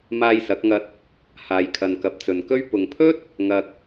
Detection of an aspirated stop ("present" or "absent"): present